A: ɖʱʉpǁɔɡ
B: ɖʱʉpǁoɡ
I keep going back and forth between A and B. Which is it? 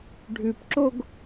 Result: B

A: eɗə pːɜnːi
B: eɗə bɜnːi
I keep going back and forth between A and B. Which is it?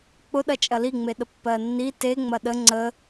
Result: A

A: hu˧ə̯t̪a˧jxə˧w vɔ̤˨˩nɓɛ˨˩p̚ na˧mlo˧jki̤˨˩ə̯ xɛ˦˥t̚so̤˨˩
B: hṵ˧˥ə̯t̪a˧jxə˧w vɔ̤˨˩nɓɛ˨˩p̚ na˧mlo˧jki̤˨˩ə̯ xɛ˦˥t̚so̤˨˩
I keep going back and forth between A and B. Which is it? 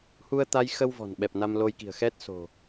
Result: A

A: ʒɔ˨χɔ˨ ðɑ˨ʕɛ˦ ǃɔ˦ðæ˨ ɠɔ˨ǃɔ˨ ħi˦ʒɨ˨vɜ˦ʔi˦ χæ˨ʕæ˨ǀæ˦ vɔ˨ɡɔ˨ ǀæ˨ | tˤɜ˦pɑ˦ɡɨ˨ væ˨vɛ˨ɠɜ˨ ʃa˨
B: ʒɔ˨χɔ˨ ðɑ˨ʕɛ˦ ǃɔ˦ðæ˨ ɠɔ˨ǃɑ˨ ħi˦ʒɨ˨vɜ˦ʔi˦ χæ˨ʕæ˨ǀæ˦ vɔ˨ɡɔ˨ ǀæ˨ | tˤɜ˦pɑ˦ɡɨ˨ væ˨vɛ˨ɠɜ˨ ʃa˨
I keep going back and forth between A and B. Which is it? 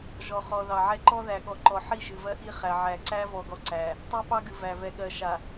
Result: A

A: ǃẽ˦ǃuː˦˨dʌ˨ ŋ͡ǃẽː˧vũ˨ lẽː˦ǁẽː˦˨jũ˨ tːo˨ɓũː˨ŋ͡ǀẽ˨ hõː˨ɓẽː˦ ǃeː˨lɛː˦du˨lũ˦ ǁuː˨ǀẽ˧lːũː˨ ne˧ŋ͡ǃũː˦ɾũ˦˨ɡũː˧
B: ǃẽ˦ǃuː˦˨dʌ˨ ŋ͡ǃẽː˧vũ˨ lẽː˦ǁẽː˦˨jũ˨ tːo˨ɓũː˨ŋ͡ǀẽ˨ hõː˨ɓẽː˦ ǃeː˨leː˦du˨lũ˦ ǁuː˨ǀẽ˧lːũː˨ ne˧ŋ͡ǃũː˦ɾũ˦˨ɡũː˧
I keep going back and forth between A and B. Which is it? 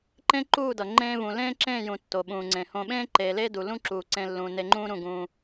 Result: B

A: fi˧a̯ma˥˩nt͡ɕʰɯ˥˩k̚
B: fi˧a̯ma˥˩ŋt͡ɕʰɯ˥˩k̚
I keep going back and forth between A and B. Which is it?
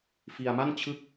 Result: A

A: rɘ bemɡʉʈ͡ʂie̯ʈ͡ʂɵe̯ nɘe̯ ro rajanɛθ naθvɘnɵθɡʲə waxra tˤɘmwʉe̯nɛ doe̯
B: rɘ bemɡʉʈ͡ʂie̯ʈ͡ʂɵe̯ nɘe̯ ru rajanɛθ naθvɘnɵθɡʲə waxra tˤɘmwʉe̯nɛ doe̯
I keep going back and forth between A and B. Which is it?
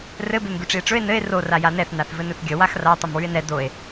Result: A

